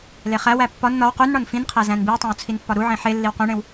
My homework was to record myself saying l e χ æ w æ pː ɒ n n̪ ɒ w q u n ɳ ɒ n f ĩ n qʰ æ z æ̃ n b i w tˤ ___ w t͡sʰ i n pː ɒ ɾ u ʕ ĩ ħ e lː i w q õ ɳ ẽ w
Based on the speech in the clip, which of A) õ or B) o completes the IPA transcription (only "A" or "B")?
A